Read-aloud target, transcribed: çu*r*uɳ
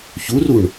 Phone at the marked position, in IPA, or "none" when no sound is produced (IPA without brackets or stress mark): r